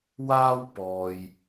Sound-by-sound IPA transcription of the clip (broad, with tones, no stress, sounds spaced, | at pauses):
w aː˥ w p ɔː˨ j